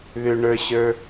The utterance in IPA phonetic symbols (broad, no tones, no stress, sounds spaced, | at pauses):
ð ʏ ɳ ə˞ ɕ ə˞